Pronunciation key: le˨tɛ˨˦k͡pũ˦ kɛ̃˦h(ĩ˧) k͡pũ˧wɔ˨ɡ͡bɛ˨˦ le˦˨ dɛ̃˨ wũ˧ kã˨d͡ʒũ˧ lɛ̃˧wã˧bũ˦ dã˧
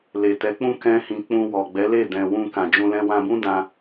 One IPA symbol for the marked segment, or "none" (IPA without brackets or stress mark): ĩ˧